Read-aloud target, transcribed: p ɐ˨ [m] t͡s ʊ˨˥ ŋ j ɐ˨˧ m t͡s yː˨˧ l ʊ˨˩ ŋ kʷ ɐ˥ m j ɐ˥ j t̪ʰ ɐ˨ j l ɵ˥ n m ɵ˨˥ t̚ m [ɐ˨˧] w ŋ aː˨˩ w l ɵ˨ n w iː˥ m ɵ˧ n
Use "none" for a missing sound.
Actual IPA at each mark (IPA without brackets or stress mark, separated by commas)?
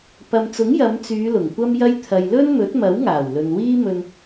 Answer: m, ɐ˨˥